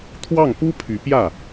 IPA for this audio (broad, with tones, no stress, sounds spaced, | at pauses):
t̪ʰ w ɑ˥˩ ŋ p u˥ pʰ y˧˥ p j ä˥˩